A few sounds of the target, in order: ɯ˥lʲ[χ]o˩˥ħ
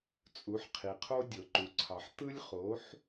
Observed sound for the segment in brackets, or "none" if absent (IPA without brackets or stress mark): χ